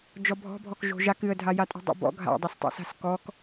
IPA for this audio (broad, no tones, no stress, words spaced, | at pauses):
d͡ʒɔbʱɔ̤bʱɔkʒo̤ ʒak ɨə̯dʱajatʼo̤ dˤo̰bɔ̰ ɡʱa̰dˤostˤo̰ sa̤skɔk